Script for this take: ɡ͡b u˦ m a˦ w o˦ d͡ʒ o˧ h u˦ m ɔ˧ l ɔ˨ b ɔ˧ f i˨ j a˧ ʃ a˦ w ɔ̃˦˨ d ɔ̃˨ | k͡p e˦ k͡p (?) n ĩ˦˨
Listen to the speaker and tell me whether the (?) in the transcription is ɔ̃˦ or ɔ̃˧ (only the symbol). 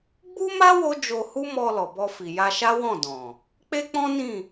ɔ̃˦